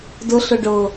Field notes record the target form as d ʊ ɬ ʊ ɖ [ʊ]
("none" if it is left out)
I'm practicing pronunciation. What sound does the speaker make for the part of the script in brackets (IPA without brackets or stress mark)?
ʊ